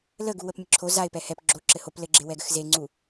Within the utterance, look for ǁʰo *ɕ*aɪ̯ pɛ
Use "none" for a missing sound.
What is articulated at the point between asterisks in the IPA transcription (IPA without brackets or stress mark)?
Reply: z